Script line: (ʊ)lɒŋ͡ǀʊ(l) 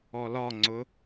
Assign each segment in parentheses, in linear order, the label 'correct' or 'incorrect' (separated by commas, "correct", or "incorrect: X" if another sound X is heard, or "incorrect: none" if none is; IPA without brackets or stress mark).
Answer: incorrect: ɔ, incorrect: none